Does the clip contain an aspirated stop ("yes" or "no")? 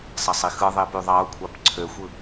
yes